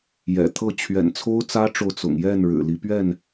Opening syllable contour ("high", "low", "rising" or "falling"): low